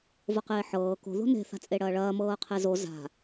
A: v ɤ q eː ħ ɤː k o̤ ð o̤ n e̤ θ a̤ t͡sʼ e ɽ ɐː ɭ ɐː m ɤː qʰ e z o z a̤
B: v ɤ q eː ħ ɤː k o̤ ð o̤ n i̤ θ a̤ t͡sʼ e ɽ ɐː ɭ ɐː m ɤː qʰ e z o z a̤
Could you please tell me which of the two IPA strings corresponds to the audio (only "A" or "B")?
A